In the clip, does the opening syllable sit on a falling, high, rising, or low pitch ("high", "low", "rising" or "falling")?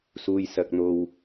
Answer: low